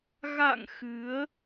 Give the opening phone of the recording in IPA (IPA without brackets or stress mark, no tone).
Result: ɣ